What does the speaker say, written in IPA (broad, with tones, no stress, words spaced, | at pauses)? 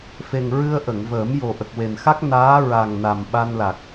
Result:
fe˨˩ŋɹɨ˧ə̯ ʔə˨˩˨ŋvəː˨˩˦mjo˨˩ ʔə˨˩k̚we˨˩nxa˦˥k̚ naː˧˥ ɹa˨˩ŋna˨˩m ɓa˧nla˨˩k̚